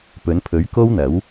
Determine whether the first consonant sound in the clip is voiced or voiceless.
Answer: voiceless